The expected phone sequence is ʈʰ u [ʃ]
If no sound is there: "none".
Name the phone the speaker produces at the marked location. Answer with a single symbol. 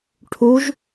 ʒ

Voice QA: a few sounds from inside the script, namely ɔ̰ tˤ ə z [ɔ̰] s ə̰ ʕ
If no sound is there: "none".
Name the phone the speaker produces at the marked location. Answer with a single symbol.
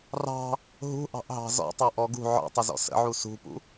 ɔ̰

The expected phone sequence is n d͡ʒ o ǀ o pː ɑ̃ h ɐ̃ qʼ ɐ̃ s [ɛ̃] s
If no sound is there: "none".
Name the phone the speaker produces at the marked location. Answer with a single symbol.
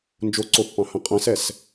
ɛ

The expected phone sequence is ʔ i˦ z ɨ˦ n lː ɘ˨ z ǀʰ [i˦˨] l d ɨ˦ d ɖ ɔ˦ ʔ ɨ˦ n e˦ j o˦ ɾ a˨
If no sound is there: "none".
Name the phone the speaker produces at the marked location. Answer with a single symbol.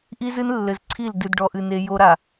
i˦˨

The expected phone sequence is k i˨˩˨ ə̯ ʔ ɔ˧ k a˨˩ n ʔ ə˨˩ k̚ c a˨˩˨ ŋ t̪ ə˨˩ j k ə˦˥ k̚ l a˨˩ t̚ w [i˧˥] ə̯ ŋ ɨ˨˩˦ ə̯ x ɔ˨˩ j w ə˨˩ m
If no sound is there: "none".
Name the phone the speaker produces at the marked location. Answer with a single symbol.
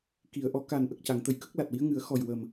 i˧˥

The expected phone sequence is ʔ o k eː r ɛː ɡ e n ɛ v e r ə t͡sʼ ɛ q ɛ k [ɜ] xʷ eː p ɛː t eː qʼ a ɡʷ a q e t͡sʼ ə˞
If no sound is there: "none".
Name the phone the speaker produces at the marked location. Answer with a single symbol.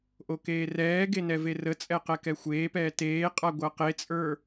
ɛ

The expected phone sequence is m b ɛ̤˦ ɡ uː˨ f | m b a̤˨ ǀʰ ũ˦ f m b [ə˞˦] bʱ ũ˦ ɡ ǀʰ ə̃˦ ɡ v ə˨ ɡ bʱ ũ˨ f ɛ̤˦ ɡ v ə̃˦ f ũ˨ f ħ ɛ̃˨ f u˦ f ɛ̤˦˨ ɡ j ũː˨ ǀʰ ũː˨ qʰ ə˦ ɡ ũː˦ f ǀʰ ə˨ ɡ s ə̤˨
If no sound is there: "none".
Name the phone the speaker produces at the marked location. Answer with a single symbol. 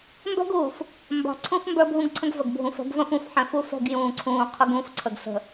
ə˞˦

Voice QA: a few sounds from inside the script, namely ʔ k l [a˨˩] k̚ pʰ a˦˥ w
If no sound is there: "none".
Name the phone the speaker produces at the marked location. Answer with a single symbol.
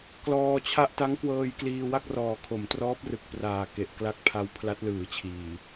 a˦˥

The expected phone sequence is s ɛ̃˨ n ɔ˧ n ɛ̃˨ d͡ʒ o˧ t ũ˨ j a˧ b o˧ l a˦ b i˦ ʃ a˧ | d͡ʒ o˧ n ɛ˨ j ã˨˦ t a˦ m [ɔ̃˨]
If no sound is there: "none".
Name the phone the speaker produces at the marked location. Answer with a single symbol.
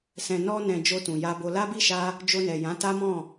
ɔ̃˦˨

